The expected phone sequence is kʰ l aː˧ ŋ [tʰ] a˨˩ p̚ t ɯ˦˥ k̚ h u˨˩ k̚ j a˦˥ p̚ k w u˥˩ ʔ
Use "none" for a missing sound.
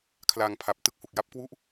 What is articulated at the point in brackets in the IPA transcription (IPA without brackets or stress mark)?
pʰ